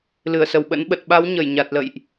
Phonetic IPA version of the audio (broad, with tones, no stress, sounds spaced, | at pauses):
l ɨ˧˩ ə̯ s ə˧˩ w ɓ ə̰˧˥ n ɓ ə˨˩ t̚ ɓ a˨˦ w ɲ ə˧˩ j ɲ a˨˩ t̚ l ə̰˧˨ j ʔ